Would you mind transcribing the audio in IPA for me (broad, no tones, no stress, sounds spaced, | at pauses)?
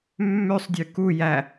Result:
mː ø sˤ dʲ ʉ k u j æ